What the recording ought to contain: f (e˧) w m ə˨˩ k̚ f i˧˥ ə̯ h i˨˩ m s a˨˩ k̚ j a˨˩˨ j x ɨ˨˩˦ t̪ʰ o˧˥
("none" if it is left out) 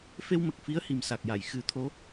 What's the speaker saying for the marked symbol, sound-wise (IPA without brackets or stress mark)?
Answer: e˧